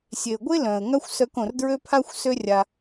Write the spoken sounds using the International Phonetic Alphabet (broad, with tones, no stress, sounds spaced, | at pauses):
sʲ e˨ ə̯ ɡʷ e˦ l œ̃˨ ə̯ ŋ a˦ xʷ s œ˧ k õ˨ r d ɹ ø˦ pʰ a˦ xʷ s ø˦ rʲ a˧